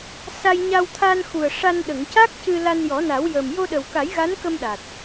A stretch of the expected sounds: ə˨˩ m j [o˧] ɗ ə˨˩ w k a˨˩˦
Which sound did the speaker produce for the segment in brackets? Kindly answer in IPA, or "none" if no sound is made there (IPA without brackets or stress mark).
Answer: o˧